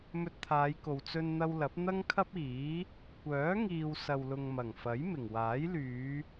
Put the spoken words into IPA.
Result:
m ɵ˧ t̚ t̪ʰ aː˨˧ j k o˨ w t͡s ɵ˧ n n̪ ɐ˧ w l ɐ˨˥ p̚ n̪ ɐ˥ ŋ kʰ ɐ˥ p̚ iː˨˥ | kʷ œː˨˥ ŋ iː˨ w s ɐ˨ w l ʊ˨ ŋ m ɐ˨˩ ŋ f ɐ˨˥ j m ɪ˨˩ ŋ w aː˨˥ j l yː˨˧

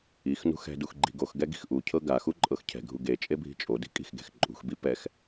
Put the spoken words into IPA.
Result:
i x n ṳ x ɛ̤ d u x ɡ͡ǃ i̤ ɡ o x ɡ ɛ ɡ i̤ x ʔ u cʰ ɤ ɡ a x u ǃʼ ɤ x cʰ ɛ̤ ɡʱ u ɡ e t͡ʃʼ e bʱ i̤ t͡ʃʼ o d i̤ kʼ i̤ x ɡ e̤ x ǃʼ ṳ x b i p ɛ x

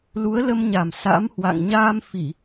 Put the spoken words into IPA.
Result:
l u˨˦ ə̯ l ə˧ m ɲ a˨˩ m s a̰˧˥ m h w a̰˧˨ ŋ ɲ aː˧ m f i˧˩˨

